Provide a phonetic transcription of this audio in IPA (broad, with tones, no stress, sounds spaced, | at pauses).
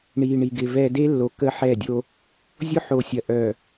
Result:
ɳ iː˨ ɳ i˨ ɡ ɪ˨ v ɛ˨ d e˦ lː o˨ k ə˦ ħ ɛ˦˨ dʲ o˦ | zʲ ʊ˦ ħ o˨ sʲ ɐ˨ ʔ œ˨